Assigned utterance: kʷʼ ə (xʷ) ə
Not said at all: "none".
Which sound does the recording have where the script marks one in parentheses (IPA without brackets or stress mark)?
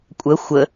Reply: xʷ